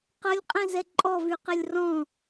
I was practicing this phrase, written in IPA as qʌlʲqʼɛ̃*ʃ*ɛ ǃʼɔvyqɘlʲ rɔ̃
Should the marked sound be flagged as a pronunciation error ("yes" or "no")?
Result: yes